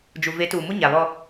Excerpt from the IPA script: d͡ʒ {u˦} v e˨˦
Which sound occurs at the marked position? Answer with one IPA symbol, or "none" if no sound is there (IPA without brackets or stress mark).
u˨